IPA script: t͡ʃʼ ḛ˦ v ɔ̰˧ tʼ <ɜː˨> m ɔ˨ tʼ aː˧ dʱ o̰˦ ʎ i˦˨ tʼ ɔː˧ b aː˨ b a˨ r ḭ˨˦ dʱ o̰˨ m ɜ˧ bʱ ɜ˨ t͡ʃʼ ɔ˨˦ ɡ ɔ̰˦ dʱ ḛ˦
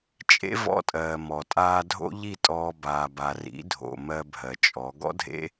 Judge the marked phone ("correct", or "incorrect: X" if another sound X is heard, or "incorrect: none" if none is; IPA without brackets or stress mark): correct